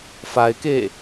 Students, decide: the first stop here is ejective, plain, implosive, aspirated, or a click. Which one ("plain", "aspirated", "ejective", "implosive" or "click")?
plain